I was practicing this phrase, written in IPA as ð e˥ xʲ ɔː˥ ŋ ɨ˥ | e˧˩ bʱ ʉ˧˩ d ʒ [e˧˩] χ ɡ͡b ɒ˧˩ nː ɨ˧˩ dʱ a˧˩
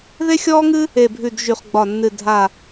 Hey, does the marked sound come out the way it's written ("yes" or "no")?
no